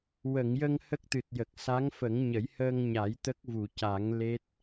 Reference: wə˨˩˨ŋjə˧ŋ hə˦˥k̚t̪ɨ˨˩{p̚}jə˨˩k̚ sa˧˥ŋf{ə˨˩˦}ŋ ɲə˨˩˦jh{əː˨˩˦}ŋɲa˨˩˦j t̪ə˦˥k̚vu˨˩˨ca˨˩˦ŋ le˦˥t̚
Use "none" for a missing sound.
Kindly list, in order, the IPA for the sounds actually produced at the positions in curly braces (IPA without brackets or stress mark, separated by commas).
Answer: t̚, ə˨˩˦, əː˧